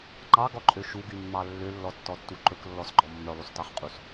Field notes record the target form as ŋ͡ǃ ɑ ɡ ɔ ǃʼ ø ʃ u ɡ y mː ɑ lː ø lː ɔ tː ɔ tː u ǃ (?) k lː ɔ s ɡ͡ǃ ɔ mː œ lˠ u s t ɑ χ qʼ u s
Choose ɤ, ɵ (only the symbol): ɵ